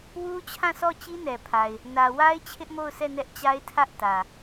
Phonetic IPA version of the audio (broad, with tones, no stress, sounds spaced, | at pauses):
w u˦ t͡ɕʰ ã˦˨ s ɔ˦˨ t͡ɕ i˦ n ɛ˨ pʰ a˨ ɪ̯ | n ä˨ w a˦ ɪ̯ t͡ɕʰ ɪ˦ ʔ m o˦˨ ʊ̯ s ɛ˦˨ n ɛ˦ ʔ t͡ɕ a˦ ɪ̯ tʰ ä˦ ʔ t ä˨